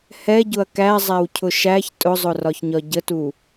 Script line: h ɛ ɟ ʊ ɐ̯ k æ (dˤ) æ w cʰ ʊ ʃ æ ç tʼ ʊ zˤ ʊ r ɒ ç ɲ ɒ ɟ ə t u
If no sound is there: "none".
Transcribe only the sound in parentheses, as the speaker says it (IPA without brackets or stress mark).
zˤ